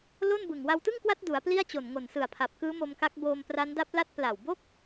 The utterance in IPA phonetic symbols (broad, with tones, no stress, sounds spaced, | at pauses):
l o˥˩ n b ɯ˨˩ ŋ w a˧ w t ɯ˥˩ ŋ k w a˦˥ t̚ d u˩˦ a̯ p l i˥˩ a̯ t͡ɕ o˨˩ n ŋ o˨˩ n s ɯ˨˩ a̯ pʰ a˨˩ p̚ k ɯː˦˥ m o˧ m k a˦˥ k̚ b oː˧ m p r a˦˥ n d a˦˥ p̚ l a˦˥ t̚ p l a˨˩ w b o˥˩ k̚